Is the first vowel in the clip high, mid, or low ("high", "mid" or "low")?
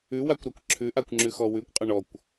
high